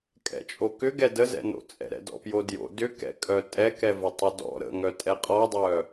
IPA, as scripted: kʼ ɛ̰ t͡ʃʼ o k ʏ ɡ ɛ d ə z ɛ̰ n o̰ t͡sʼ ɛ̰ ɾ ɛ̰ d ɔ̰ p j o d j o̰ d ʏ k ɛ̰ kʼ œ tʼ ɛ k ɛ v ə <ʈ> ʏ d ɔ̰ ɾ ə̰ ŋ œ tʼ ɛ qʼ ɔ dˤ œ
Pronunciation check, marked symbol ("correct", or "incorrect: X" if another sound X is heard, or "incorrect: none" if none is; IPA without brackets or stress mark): incorrect: tˤ